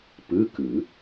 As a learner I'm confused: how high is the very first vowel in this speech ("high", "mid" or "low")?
high